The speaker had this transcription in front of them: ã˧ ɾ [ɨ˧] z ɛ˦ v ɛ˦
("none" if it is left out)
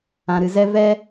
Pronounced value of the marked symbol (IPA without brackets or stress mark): ɨ˧